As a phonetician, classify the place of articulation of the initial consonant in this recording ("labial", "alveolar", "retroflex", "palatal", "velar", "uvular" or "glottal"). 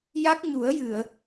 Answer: palatal